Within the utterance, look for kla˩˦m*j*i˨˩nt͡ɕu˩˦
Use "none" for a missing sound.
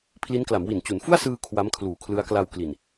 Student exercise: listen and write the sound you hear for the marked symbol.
w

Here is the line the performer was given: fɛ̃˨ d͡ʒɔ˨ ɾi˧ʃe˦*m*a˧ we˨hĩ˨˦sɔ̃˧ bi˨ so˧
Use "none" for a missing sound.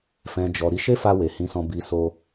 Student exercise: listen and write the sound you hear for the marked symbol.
f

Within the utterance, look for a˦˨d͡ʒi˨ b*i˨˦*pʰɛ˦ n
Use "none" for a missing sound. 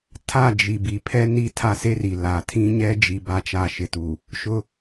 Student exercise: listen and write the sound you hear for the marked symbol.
i˨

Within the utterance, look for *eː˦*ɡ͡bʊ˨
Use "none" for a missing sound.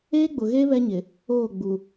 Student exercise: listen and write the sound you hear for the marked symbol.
eː˦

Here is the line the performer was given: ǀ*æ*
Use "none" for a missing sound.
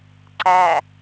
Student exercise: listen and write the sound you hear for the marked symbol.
æ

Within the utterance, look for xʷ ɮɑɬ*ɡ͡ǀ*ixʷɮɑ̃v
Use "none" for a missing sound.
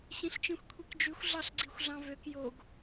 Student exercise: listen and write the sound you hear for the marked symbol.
ɡ͡ǀ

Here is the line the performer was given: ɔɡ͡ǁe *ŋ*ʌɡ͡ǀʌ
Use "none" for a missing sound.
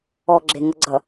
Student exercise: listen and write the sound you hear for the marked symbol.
ŋ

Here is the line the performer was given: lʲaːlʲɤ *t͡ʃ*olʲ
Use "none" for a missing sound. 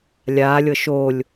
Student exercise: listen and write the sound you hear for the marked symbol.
ʃ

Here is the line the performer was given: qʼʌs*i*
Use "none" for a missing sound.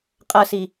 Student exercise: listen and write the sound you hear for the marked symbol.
i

